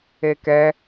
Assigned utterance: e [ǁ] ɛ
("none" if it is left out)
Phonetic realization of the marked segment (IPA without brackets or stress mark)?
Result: k